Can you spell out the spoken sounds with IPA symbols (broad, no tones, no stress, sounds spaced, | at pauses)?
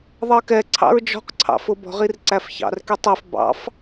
ðˤ ɜ k ɛ ǀʰ ɑ̰ ɹ d͡ʒ ɔ̤ q ǀʰ ɑ̰ f ʊ b ɔ̤ ʁ i r ǀ æ f ç ɑ̰ r k i tˤ ɛ f b ɑ̰ f